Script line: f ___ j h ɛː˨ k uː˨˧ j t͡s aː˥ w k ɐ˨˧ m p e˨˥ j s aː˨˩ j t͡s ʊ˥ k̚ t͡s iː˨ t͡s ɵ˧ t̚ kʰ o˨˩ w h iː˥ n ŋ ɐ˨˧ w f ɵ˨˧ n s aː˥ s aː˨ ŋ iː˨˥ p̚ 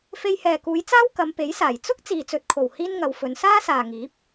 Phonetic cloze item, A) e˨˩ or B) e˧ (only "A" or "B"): B